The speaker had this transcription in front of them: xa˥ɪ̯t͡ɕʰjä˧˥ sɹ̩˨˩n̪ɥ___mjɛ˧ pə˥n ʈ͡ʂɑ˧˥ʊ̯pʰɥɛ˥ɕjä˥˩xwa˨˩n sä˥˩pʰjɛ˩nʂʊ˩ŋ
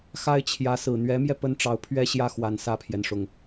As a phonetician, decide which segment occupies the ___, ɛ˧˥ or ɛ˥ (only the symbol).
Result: ɛ˧˥